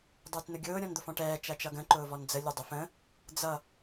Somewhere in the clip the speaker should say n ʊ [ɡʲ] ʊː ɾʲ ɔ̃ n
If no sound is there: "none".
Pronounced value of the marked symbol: ɡʲ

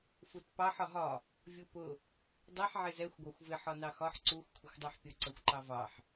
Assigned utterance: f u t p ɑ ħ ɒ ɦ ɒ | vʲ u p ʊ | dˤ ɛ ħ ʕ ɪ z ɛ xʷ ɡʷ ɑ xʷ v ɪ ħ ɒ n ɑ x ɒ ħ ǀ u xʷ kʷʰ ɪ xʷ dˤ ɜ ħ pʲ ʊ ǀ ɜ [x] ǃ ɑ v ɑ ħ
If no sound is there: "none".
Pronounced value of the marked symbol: xʷ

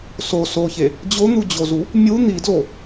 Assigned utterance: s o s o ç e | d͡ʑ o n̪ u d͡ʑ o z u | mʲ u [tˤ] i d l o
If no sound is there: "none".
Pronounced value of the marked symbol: n̪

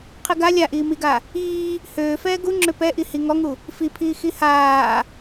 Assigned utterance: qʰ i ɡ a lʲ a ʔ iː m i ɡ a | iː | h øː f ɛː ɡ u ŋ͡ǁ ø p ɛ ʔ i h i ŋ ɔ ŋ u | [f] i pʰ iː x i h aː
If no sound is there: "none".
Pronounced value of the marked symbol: f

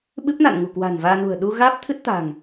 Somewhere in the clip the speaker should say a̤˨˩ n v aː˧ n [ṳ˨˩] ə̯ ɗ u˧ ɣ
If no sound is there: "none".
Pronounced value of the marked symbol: ṳ˨˩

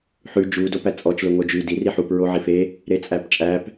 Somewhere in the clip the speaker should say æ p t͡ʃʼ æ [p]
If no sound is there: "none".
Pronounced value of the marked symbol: p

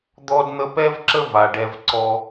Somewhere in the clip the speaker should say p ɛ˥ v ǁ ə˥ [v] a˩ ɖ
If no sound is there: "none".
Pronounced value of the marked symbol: v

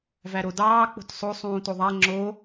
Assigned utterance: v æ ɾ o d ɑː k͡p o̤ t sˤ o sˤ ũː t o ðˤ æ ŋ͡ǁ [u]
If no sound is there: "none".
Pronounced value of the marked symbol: o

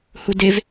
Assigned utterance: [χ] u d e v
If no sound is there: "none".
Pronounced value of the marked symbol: h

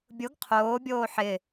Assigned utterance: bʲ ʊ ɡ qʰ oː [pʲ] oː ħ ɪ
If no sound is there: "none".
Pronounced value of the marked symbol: bʲ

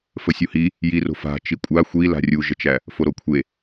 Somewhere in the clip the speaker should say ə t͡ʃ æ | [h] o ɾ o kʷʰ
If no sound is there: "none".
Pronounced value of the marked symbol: f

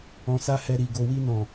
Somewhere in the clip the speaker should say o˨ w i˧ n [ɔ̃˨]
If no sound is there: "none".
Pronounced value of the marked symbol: ɔ̃˨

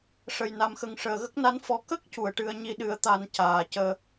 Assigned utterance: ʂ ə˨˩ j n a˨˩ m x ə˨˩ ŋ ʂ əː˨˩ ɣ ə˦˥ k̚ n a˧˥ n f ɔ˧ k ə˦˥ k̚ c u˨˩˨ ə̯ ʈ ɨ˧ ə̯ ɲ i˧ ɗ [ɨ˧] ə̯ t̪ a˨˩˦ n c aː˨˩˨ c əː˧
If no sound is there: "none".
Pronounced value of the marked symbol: ɨ˨˩˦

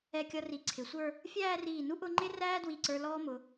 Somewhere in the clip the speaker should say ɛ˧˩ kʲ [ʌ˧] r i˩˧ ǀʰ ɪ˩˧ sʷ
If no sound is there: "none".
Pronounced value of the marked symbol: ʌ˧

